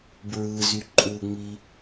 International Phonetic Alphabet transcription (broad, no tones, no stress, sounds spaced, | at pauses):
b ɹ ɯ z y ǃʼ u ŋ͡m i